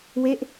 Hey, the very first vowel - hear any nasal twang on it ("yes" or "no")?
no